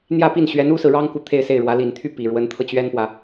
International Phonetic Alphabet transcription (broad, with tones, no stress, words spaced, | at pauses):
n̪jä˥˧pi˥˩nɕɥɛ˧˥n u˥sɹ̩˨ ɻɑ˥ŋku˨ t̪ʰe˥˧ɪ̯se˥˩ɪ̯ɻwä˧˥ li˨˩nt̪ʰy˥˩ pi˨˩ɻwə˧˥nt̪ʰɤ˧ t͡ɕɥɛ˥npwä˨